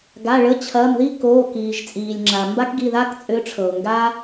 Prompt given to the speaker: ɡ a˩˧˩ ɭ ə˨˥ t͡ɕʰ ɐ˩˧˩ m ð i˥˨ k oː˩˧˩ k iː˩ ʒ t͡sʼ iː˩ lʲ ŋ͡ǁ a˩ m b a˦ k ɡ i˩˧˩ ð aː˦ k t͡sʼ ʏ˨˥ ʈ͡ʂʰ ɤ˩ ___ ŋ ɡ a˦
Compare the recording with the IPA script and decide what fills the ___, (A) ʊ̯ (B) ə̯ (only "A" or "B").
A